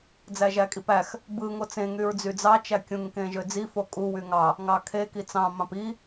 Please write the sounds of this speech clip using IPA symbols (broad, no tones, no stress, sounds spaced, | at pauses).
d͡z æ ʒ æ kʼ i p æ x | b ɯ ŋ o t͡s ẽ ŋ y ɹ d͡z y d͡z ɑ t͡ʃ æ kʲ ũ ŋ k ẽ ʒ ø d͡z i f o kʼ u w y ŋ ɑ | ŋ ɑ kʰ e k i t͡s ɑ̃ m ɑ̃ p i